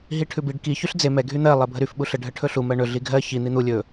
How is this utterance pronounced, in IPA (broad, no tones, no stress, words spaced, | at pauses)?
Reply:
ɦiʈʰʉbiɖ ki çyɬd͡ze mɛ ɡʱyn̪ɜ lˠɜbʱəɾyf ɓuɬə ɖʱəʈʰɵɬu mɜɳɵ ɮiɡʱɜ çi n̪in̪u lʲɵ